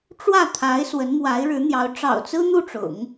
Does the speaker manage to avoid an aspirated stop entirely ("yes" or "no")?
no